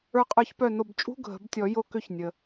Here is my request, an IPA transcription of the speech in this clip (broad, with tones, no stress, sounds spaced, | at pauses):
ə˞˧˩ qʼ ə˞˨˩˦ ç p œ˧˩ n o˧˩ b t͡ʃʼ ṳ˧˥˧ ɡʱ ə̤˨˩˦ b tʲ ɔ˨˩˦ j o˧ k ʏ˧ ç nʲ ə˩